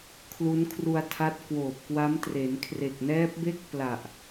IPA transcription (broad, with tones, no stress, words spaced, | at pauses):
kʰlu˦˥nkʰru˧a̯tʰa˦˥t̚ kwoː˨˩p̚kwa˦˥m tre˩˦nkʰre˨˩k̚nɛː˦˥p̚be˥˩k̚ pla˨˩ʔ